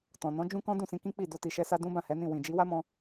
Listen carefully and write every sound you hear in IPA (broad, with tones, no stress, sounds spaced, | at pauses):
t ɔ̃˨ n ɔ̃˨˦ d͡ʒ ũ˦ k ɔ̃˦ d ũ˦˨ s ĩ˧ k ĩ˦ k͡p i˦˨ d o˧ t i˨ ʃ ɛ˧ s a˧ d ũ˦ b ã˦˨ h ɛ˨˦ n ĩ˦˨ w ĩ˨ d͡ʒ i˨˦ w a˦ m ɔ̃˧